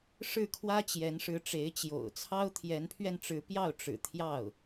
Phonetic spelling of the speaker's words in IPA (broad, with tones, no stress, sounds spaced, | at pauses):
ʂ ɻ̩˥˩ kʰ w ä˥ t͡ɕ j ɛ˧˥ n ʂ ɻ̩˧˥ ʈ͡ʂ e˧˥ ɪ̯ t͡ɕ j o̰˨˩ ʊ̯ t͡sʰ ɑ˥ ʊ̯ t̪ʰ j ɛ˧˥ n pʰ ɥ ɛ˧ n ʈ͡ʂ ɻ̩˧˥ p j ɑ˥˩ ʊ̯ ʈ͡ʂ ɻ̩˨˩ t̪ʰ j ɑ˥˩ ʊ̯